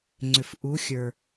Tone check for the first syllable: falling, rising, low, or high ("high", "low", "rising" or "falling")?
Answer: low